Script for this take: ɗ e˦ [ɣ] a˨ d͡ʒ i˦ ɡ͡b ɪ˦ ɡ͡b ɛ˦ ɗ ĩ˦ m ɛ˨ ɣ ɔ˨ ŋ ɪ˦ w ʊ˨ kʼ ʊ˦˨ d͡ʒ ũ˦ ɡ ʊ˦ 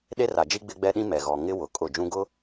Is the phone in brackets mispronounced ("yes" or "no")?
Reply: yes